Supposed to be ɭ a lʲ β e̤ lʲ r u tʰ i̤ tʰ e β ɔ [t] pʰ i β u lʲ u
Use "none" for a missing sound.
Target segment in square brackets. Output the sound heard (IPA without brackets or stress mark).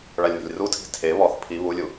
θ